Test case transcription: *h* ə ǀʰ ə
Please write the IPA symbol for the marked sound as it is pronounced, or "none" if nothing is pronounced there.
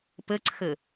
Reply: p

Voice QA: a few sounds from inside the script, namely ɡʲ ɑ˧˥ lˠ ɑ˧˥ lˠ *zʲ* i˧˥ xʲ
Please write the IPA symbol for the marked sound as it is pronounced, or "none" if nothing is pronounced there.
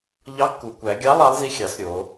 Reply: z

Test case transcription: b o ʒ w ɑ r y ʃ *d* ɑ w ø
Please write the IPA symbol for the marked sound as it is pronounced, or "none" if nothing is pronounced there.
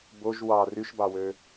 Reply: b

